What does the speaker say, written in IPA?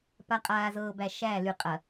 p a˨ qʼ aː˨ z ɤː˨ b æ˨ ʃ æ˦˨ l y˨ qʼ ɐ˨

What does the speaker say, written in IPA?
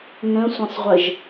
ŋ ə̃ sʷ ɐ̃ sˤ ʁʷ ə ʒ

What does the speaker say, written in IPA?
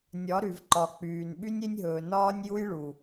nʲ ɒ˨˦ ɾ y˨ v ǃ ɒ˨ k͡p yː˨ n ɓ y˦ nʲ e˦ nʲ ɦ ɵː˨ n ɒː˦ nʲ j u˦ j ɭ u˨

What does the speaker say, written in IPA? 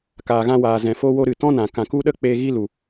k aː˨ ɣ ã˧ w aː˨ z ɛ̃˨ f o˧ w o˧ ɾ ɨ˨ t ɔ̃˦ n ã˨ k ã˨ k u˦ ɗ ə˦ k͡p e˧ ɣ i˧ l u˨

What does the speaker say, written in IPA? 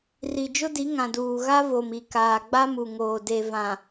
r i˨ d͡ʒ ʊ˦ d i˨˦ ŋ ã˨ d uː˨ ɣ a˦ v o˨ m i˨ k aː˨ ɡ͡b a˦ m u˨ ŋ oː˨ d e˨ v ã˨

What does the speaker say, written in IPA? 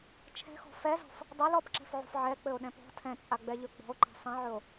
t͡ʃʰ ɛ̤ x ɔ̤ f ɛ z ɔ̤ f | dˤ ɘ l ɔ p ǁ ɛ̤ f ʕ ṳ f ʕ ɛ k͡p ɘ o̯ ɗ ɛ̃ p ɔ̤ tʰ ɛ̃ t͡sʼ a ɡ͡b ɛ ʎ ɵ ɡ͡b ɔ̤ o̯ ǃ ɛ̤ sˤ ɛ̃ ʕ ɵ o̯

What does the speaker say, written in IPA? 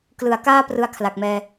k l ɯ˩˦ a̯ k aː˥˩ p r ɯ˦˥ a̯ kʰ l a˨˩ k̚ m ɛː˧

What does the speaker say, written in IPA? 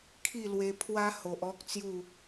kʰ i˥˧ l w e˧ pʰ w a˦ h o˨ ʔ ɔ˦ k̚ t͡s j u˥˧

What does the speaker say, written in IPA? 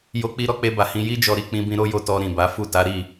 j o˧ k͡p i˧ ɾ ɔ˧ k͡p e˧ b a˨ h ĩ˧ j i˧ d͡ʒ ɔ˨ ɾ i˨ k͡p ĩ˧ b ĩ˧ ɾ o˦ j o˧ t ɔ˧ ɾ ĩ˨ b a˨˦ f u˦˨ t a˨˦ ɾ i˦˨

